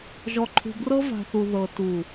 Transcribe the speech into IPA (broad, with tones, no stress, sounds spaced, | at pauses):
ʒ ɔ˨ ǃʰ ṳ˨ b r ɤ˦ v a̤˨ θ u˨ ð ɤ˨ t u˨